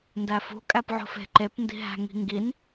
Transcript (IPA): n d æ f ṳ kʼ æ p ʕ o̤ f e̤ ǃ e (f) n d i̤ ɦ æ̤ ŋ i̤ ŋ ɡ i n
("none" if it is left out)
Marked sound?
p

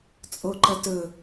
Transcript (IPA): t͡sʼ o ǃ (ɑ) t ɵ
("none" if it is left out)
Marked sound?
ɐ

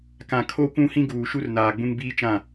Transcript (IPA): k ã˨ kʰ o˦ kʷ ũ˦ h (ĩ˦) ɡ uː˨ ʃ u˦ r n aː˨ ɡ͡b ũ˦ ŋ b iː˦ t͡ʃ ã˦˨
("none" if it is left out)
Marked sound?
ĩ˦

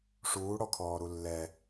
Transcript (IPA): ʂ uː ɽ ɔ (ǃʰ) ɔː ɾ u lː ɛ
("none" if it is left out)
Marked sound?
kʰ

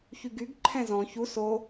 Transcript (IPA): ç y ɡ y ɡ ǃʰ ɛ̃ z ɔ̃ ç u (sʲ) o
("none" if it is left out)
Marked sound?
s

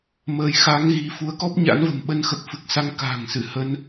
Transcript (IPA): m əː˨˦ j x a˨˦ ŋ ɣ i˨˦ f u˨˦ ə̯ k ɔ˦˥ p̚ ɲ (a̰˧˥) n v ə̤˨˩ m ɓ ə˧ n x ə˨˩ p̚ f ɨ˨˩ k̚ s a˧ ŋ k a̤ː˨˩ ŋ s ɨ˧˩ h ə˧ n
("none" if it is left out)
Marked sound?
a̰˧˥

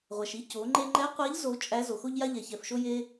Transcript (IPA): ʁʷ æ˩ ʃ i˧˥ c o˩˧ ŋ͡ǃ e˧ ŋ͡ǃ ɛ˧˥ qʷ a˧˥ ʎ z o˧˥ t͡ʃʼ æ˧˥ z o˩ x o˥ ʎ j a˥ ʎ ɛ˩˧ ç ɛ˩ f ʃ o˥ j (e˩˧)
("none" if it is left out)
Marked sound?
e˥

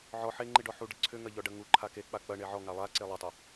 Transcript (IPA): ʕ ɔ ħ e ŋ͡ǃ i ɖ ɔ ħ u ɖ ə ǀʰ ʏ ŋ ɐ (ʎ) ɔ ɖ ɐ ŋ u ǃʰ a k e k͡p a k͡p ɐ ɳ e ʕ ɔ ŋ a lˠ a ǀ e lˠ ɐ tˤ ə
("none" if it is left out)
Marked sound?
ʎ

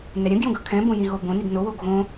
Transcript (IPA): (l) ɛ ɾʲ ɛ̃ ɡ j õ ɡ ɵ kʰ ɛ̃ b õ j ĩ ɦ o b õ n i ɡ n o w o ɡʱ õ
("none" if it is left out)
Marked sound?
n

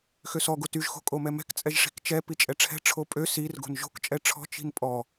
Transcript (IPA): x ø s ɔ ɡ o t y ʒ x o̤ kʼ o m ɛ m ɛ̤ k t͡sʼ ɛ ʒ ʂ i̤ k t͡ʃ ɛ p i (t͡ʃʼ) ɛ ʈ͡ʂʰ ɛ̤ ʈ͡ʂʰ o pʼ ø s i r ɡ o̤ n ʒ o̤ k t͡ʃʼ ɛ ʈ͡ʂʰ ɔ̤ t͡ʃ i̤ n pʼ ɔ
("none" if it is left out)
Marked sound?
t͡ʃʼ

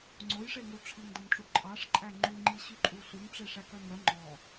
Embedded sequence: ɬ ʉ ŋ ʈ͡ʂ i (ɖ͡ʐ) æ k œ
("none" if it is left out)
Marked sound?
ʂ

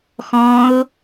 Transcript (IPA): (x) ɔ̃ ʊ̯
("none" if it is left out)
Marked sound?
x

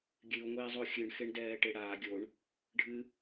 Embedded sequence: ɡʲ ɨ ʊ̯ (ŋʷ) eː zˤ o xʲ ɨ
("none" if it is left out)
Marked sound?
ŋʷ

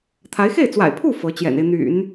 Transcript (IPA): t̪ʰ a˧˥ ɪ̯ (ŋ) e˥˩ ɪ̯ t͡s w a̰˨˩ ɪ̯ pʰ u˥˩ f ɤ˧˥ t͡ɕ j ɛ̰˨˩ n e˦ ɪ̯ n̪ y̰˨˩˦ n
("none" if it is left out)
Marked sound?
x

